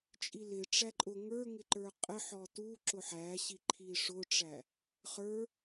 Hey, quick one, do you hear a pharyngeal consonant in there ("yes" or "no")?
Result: yes